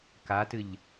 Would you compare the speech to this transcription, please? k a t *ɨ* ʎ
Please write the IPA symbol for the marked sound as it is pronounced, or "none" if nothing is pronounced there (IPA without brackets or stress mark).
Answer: ɨ